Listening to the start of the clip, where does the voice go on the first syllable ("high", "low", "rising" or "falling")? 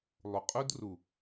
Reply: low